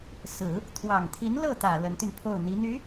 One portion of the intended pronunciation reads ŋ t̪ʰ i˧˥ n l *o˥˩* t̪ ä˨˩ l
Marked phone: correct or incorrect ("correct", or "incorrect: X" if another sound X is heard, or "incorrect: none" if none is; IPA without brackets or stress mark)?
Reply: incorrect: ɤ˥˩